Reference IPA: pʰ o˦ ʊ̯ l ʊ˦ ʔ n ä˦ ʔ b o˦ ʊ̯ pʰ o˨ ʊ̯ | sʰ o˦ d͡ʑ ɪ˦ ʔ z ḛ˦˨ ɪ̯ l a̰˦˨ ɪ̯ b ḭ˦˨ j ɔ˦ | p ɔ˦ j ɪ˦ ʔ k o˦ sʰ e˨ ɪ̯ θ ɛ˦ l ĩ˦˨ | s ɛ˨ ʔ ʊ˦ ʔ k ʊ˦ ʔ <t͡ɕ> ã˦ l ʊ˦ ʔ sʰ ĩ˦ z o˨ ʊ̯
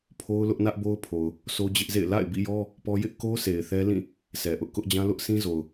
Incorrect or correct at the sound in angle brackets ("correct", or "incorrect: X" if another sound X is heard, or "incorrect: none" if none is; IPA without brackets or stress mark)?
incorrect: d͡ʑ